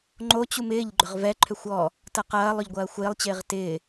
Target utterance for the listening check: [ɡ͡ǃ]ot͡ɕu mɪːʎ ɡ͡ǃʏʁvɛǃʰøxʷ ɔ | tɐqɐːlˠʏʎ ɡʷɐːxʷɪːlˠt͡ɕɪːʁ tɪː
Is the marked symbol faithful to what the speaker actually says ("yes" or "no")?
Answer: no